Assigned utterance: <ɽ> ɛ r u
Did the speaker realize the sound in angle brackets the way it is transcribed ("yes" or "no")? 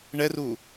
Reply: no